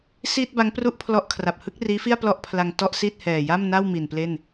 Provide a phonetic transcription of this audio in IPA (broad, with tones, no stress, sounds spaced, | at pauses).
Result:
s iː˥˩ t̚ b a˦˥ ŋ p r u˥˩ ʔ pʰ l ɔ˦˥ ʔ kʰ r a˨˩ p̚ h ɯ˦˥ k̚ r iː˦˥ f i˥˩ a̯ p l ɔ˥˩ ʔ pʰ l a˧ ŋ t ɔ˥˩ ʔ s i˥˩ t̚ h ɛː˨˩ j a˥˩ m n a˥˩ w m i˨˩ n p l e˥˩ n